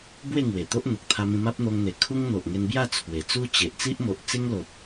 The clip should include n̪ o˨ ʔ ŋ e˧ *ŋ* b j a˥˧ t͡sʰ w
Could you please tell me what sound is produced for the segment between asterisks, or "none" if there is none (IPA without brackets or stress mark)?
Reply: n